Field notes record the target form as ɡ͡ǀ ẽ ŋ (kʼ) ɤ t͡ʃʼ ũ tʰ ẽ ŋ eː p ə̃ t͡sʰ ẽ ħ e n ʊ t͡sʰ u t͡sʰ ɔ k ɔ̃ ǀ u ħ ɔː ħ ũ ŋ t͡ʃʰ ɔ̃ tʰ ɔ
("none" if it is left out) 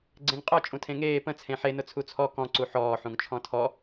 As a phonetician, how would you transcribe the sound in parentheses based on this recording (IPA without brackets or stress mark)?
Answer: qʼ